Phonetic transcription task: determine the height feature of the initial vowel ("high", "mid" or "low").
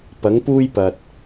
low